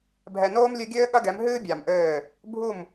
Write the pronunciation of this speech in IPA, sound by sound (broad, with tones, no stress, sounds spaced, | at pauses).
bʱ ɛ˨ n oː˦ m lʲ ɨ˦ ɡʲ ɘː˦ ɠ ɐ˦ ɡ ɛ˨˦ m ɦ ɨː˦ bʲ a˨ m ʔ ɘː˦˨ | bʱ u˦˨ m